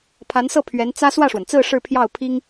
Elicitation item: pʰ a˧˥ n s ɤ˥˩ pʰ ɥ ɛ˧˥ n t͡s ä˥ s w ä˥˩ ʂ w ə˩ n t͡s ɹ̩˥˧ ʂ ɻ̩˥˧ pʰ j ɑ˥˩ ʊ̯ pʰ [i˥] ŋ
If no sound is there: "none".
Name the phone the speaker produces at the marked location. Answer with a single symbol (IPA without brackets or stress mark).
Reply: i˥